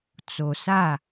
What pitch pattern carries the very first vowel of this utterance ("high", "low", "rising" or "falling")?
low